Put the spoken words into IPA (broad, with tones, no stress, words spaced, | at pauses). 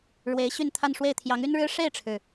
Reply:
ɻwe˧˥ɪ̯ɕy˥˧n t̪ʰa˥˧nʂwe˥˩ɪ̯ t̪ʰjɑ˧˥ŋy˥nɻɻ̩˥ ʂe˥˩ɪ̯ʈ͡ʂʰɻ̩˩